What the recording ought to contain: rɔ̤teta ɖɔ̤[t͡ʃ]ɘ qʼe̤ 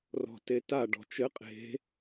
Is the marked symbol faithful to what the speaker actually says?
yes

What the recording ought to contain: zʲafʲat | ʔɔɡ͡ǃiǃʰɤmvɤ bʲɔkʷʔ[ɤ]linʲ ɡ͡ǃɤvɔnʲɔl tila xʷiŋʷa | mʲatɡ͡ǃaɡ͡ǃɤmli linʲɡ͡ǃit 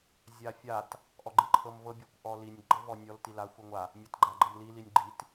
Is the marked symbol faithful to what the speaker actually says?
no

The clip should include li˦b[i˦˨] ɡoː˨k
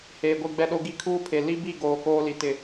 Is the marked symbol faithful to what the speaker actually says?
yes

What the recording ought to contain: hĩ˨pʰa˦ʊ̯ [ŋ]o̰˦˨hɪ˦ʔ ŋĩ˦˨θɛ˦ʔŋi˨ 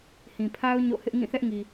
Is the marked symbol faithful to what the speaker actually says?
no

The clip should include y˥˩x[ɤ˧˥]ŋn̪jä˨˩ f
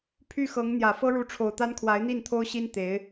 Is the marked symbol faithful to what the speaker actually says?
yes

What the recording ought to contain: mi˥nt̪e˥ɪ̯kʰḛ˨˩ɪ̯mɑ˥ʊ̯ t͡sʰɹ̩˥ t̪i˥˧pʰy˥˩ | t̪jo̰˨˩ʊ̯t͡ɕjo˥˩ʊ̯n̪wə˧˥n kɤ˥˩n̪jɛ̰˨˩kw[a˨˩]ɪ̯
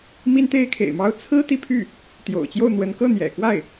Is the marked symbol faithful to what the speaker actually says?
no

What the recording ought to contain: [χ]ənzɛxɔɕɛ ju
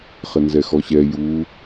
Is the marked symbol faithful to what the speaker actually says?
yes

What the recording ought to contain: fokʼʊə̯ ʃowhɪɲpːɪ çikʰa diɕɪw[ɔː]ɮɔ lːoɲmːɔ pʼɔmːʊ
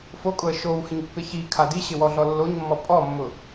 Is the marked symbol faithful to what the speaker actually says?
no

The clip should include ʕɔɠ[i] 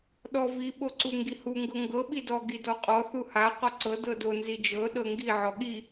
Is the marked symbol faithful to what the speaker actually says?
yes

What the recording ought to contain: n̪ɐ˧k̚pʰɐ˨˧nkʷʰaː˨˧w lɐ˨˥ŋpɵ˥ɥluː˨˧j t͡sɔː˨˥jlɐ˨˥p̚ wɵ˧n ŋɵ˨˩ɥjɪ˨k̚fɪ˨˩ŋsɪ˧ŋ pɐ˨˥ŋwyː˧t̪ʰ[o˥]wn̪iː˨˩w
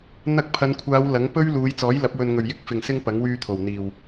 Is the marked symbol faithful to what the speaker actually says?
no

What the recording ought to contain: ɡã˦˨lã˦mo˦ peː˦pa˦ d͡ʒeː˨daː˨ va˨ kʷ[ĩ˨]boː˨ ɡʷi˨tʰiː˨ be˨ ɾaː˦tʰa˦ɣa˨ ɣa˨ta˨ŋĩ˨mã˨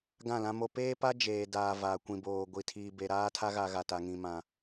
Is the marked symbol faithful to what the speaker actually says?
yes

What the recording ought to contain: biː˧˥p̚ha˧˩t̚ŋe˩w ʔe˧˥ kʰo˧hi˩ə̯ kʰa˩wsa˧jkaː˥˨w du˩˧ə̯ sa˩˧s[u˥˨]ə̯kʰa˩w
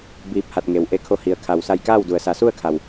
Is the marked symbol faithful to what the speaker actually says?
yes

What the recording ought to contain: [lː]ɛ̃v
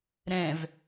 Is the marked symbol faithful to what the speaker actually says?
no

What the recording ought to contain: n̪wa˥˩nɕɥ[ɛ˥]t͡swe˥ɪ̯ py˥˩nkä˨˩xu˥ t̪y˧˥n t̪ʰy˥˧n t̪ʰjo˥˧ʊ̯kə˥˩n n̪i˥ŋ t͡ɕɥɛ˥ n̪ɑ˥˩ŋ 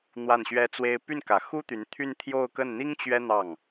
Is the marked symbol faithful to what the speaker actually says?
yes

